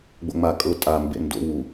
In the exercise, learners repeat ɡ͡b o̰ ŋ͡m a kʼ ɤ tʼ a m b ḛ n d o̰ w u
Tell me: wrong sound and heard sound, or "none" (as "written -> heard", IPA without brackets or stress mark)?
none